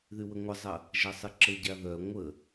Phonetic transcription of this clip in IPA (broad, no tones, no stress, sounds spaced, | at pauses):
ð y w ə ŋʷ ə zˤ ɐ | ʒ ɐ sˤ ɪ ǁ ə ɟ a ð œ ŋʷ ə